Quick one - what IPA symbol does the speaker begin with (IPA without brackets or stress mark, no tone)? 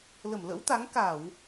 l